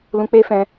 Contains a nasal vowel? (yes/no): yes